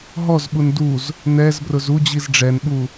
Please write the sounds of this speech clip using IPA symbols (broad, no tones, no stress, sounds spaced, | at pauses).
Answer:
ɦ ɔ z ɓ u n d u z | n̪ ɛ z b r ʊ z u d͡ʑ i z ɖ͡ʐ ɛ n ɓ u